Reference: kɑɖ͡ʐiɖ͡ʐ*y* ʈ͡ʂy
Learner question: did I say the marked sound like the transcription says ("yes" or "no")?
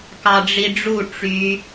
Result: no